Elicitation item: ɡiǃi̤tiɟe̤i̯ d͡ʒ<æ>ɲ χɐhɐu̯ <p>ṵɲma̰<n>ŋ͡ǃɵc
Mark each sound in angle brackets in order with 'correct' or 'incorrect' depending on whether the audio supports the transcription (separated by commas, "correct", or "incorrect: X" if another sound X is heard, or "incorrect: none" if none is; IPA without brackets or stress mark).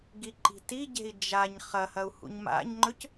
incorrect: a, incorrect: h, incorrect: ɲ